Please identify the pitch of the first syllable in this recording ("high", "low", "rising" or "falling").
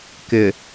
low